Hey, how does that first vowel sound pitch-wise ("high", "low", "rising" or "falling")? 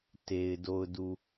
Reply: low